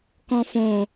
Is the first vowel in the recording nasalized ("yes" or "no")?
yes